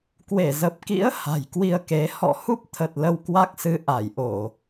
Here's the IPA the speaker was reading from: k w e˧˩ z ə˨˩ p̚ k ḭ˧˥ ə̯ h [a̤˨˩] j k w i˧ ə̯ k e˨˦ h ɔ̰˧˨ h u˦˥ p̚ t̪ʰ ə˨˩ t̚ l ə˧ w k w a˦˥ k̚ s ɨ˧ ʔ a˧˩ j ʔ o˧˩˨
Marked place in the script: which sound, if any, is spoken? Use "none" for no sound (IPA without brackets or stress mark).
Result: a̤˨˩